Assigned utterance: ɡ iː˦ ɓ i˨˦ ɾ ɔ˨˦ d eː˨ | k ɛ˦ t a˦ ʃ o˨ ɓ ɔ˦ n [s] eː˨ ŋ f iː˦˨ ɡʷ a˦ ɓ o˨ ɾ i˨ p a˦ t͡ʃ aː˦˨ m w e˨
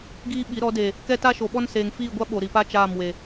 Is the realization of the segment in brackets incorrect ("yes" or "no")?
no